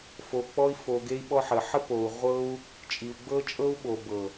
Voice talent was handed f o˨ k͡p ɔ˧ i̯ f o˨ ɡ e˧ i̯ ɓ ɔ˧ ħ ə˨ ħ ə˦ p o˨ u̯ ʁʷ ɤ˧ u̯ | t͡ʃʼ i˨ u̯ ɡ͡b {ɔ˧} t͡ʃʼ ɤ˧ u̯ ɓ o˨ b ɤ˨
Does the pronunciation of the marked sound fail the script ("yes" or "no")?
yes